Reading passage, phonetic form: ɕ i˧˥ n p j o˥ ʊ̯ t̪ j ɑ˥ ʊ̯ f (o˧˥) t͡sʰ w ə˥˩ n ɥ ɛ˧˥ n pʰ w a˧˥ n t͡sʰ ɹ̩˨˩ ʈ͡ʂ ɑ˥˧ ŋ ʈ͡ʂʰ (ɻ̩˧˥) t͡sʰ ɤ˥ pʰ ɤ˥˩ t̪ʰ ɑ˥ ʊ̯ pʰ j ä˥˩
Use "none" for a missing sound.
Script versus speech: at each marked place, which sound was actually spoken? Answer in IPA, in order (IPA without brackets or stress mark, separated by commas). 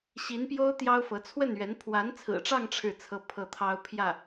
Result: ɤ˧˥, ɻ̩˥˩